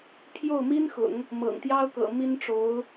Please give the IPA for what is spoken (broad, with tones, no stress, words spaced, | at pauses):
pʰjo˥˩ʊ̯mi˥nxʊ̰˨˩˦ŋ | mɤ̰˨˩ŋt̪jɑ˥ʊ̯kɤ̰˨˩ mi˥n ʈ͡ʂo˧˥ʊ̯